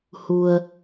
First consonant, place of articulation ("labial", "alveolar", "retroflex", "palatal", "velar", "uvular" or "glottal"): glottal